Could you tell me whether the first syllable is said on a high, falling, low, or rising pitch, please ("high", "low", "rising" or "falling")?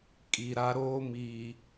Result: low